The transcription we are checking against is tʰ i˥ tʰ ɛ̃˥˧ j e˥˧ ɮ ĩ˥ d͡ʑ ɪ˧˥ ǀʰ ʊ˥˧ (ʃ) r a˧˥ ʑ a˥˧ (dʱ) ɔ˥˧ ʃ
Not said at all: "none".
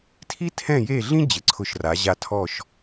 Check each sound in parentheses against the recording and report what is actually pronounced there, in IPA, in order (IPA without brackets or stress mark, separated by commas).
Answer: ʃ, tʰ